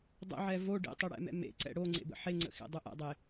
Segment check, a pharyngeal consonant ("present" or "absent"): present